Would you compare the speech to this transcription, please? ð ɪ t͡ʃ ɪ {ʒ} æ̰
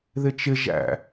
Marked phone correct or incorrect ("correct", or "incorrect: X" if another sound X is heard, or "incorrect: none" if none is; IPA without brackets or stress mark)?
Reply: correct